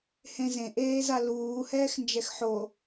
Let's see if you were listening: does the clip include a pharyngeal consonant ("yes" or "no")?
yes